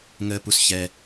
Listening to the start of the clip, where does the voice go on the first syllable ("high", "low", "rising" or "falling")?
low